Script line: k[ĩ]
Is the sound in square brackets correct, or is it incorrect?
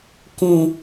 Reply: correct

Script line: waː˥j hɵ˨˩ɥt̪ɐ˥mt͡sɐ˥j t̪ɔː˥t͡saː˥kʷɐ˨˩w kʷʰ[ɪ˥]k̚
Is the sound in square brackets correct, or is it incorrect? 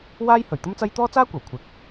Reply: incorrect: ɪ˨˥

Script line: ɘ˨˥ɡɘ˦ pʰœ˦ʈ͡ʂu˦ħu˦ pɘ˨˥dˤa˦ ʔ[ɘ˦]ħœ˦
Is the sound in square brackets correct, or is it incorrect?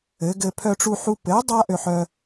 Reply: incorrect: ø˦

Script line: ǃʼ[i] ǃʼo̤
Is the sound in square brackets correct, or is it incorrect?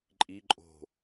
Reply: correct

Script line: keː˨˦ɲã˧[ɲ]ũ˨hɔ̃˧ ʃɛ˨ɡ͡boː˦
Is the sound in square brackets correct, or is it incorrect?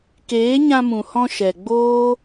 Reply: incorrect: m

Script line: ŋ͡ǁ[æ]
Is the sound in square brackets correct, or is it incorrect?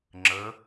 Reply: incorrect: ə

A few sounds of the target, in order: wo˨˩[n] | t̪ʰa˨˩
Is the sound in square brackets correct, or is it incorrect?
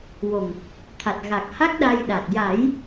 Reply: incorrect: ŋ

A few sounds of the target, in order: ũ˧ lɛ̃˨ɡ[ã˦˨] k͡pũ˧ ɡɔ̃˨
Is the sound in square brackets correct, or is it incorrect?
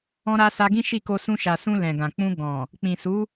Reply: incorrect: ã˨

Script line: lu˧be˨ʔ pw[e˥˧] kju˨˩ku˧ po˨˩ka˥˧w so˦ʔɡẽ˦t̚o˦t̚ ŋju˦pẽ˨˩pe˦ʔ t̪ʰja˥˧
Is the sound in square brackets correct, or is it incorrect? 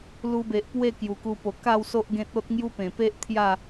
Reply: correct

